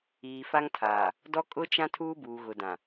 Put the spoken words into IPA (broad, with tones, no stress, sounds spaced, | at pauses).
iː˨ f a˦ ŋ tʰ aː˨ | d ɔ˦ kʼ ʊ˦ t͡ʃ ã˦ tʰ uː˦ b uː˨ ɣ ʊ˨ d ã˨